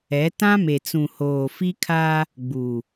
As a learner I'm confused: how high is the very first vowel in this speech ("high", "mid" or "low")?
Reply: mid